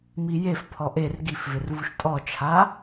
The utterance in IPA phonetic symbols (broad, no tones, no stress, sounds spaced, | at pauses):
m i j e f pʰ ɔ ʔ e r ɡ i f v ɪ r v u ʃ tʼ ɔ t͡ʃʰ a